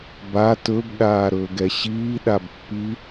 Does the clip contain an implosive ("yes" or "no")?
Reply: yes